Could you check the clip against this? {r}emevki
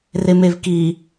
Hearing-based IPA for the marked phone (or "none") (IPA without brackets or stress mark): r